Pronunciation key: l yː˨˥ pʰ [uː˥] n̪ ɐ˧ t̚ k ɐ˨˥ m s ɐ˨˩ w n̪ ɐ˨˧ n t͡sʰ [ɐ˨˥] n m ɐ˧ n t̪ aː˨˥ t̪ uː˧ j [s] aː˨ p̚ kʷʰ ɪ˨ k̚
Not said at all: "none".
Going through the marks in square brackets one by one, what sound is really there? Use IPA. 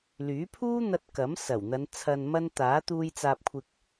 uː˥, ɐ˨, t͡s

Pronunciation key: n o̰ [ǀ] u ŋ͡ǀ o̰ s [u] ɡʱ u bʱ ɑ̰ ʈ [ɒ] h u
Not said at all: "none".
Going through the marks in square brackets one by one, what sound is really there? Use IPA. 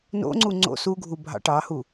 ŋ͡ǀ, u, ɑ

